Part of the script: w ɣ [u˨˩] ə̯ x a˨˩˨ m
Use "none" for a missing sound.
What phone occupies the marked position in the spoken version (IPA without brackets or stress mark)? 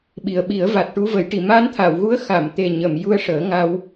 u˧˥